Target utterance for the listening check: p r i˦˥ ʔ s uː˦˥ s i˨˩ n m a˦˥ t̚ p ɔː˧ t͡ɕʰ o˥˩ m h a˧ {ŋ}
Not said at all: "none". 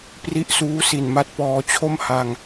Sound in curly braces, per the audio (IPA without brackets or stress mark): ŋ